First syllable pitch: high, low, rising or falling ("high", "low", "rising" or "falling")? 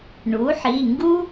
rising